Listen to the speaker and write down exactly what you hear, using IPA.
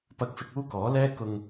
pɐ˧k̚fɪ˧k̚ uː˥kɔː˨˥ lɛː˧kʊ˨ŋ

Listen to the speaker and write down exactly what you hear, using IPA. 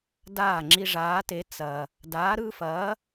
daː˥˩ŋ͡ǁi˦ʐaː˨˥te˨˥ t͡sɐ˨ | daː˨˥ɾɯː˦fɐː˨˥

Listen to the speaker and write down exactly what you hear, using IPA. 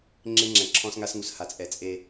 ŋ͡ǁe˦ŋ͡ǁɛ̃˨ǁʰɔ̃˦sŋa˦s ŋu˨sha˨t͡sʼɛ˨ t͡sʼe˦

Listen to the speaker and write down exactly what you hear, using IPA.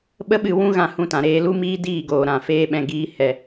ɓə˦ɓɨ˦˨ wũ˦ɣã˧ hũ˧tã˨ɾeː˧ lu˦miː˦diː˦˨ɡoː˨ ɾã˨feː˦ɓɛ̃˧ ɡiː˦hɛ˧

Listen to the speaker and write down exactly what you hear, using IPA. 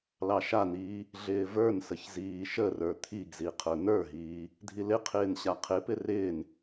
lɑʃan̪iː | ɮɪːvə˞nsəç ziːʃərə˞ t̪ʰiɡzi qʰə˞n̪ə˞ɦiː | dʱilɪqʰɪːn ɕaqʰɪpɪ rɪːn

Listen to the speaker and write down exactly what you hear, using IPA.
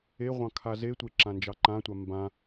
eʁʷɑ̃ kʰazetʷe ǁãnd͡ʒɑǃãtʷa mbã

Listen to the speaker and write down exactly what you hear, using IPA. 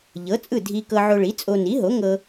ʎɤ˩˥t͡sʼɯ˥˩ dʱi˧ kɤ˧ʕo˧ɭi˩˥t͡sʼo˧ ni˩˥ɦo˩˥ ŋɤ˧

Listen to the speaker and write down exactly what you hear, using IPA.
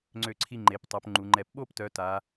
ŋ͡ǀø˧˩ǀʰi˧ ŋ͡ǃe˩˧ptˤœ˩˧pŋ͡ǃu˩˧ŋ͡ǃɛ˧˩p ɓo˥˧ptœ˩˧ ta˩˧

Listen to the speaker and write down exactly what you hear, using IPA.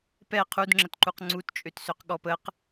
pɛ qʰudŋ͡ǁətǃuq ŋ͡ǀutt͡ʃʼøtsøq ɠɔpəq

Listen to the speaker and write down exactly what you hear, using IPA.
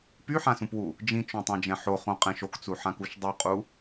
pyħãsũpwu | d͡ʒĩt͡ʃõtˤãd͡ʒɛ̃ ħoχõqʼɛ̃ʃ okt͡suħãkuʃ dˤuqʼu

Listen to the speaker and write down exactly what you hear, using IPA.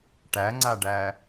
ʈæŋ͡ǀaɖæ

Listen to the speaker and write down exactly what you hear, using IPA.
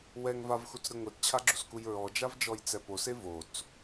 wɛŋ vavxut͡sɾɯ ŋʷett͡ɕʰaɡ͡ǁuskuj ɹɔd͡ʒavd͡ʒɔjt͡sɛ pose vot͡s

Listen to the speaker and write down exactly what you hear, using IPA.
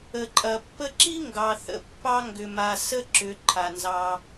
ə˩ǃʼɐ˩ pːə˦ǁi˥ ŋɡɑ˨ θə̰˨pːɑ˥ ŋɡʏ˨ma˨ sə˥ ǁʏ˨ ǃʰa˩nzɑ˨

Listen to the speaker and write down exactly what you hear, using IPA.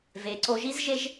ve˨ǀo˧ʒi˦zʒe˦ʒ

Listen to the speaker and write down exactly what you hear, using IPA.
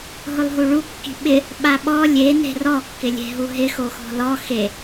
ɦʊlˠɦuɭu kːi̤ɓɪ | ɓaɓɔ lʲe ne̤rɔ kːɪlʲe̤ɦuɦɪ xoxɔ̤lɔ xe

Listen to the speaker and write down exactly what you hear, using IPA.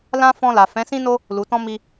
lã˦ fɔ̃˧la˨ fɛ̃˨˦sĩ˦no˦ | lu˨tɔ̃˧ mi˧

